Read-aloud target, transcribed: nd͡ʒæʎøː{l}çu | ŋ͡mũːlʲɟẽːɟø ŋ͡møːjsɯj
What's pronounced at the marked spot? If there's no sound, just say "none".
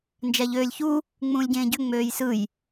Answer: lʲ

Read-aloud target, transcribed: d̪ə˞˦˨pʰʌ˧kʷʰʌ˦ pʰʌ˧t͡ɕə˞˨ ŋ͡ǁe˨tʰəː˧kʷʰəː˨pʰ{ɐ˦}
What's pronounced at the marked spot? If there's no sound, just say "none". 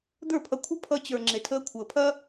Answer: ɐ˦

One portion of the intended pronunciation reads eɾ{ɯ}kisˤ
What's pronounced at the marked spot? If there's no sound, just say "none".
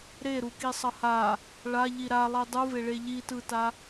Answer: u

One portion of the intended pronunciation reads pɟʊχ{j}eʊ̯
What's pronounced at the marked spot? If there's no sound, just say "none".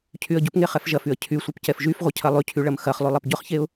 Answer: ç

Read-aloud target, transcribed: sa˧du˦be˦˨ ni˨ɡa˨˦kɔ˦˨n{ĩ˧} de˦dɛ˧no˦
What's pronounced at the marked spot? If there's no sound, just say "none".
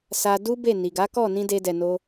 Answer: ĩ˧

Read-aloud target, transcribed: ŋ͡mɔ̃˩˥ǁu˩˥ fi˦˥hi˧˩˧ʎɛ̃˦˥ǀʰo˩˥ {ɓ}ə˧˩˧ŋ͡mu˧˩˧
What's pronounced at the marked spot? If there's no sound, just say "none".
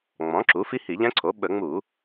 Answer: ɓ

